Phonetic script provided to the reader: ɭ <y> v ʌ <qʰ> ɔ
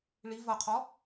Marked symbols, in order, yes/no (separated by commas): no, yes